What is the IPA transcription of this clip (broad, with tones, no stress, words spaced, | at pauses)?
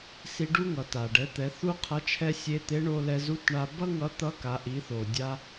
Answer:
si˧˥ɖu˥ŋʌ˩˧ ta˩ɖɛ˩˧t̪ɛ˩˧ θu˧ qʰʌ˧˥ t͡ʃʰɛ˧ sʲe˧t̪e˧˥ ɳo˧lɛ˧zu˧˥tɳa˧ bʌ˥ŋʌ˧˥t̪ʌ˧˥ka˩˧ ʔi˩˧θo˩dʲa˧